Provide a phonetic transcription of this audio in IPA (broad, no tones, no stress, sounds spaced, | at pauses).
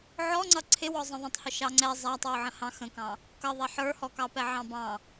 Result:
ʕ ɔ ŋ͡ǀ ʌ ǀʰ ɪ w ɔ zˤ ə̃ ðˤ ə̃ tˤ h ʊ ʃ ɑ ŋ͡ǀ ɛ zˤ æ tˤ w ʊ ʕ ə̃ h ɑ̃ x ə̃ k ɑ̃ | k ʌ ðˤ ɛ ħ ə˞ h ɔ k ɑ p ɛ ʕ ɑ̃ b ɑ̃